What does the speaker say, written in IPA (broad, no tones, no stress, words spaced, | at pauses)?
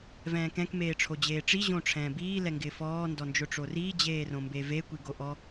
vɛ̃ːkɛ̃k meːʈ͡ʂʰod͡ʑeːʈ͡ʂi ʑõʈ͡ʂʰɛ̃ːbiː lɛŋɡɪːfɔː ndɔnd͡ʒʊʈ͡ʂoriː d͡ʑeːrõmbeve kʷiɡoʔɔ